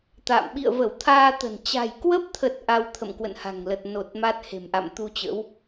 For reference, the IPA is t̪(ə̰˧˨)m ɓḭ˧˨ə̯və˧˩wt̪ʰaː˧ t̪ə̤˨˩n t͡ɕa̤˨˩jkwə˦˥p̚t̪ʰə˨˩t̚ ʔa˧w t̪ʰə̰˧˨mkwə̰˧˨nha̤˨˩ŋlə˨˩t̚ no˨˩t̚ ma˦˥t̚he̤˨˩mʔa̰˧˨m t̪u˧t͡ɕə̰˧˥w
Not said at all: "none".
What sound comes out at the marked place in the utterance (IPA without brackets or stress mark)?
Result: a̰˧˨